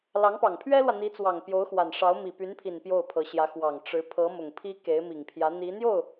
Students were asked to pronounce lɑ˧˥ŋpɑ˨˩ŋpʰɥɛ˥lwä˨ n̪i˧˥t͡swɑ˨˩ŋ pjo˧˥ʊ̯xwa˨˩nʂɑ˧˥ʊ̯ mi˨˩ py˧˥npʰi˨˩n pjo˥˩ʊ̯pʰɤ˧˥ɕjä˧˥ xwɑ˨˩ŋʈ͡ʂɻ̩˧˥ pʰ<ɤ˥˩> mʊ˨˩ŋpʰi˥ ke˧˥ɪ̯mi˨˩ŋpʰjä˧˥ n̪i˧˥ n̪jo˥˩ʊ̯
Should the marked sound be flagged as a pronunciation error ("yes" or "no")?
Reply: yes